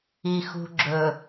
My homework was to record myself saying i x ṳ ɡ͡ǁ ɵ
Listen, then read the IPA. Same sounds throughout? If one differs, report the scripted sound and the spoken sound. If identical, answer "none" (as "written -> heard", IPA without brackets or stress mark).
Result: none